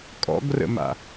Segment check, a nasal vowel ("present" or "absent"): absent